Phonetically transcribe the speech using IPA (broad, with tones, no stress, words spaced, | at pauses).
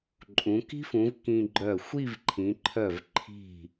ǃʼũ˩˧ki̤˥fũ˩˧v kĩ˧ɡ͡ǃœ˧˩ xʷi˥˧vǃʰĩ˩˧ǃʰœ˧˩v ǃʰi̤˧˩